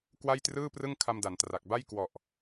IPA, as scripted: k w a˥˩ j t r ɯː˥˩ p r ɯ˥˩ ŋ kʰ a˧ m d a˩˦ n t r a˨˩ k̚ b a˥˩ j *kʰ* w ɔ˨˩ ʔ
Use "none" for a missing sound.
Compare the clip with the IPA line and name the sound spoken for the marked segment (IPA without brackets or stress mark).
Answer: k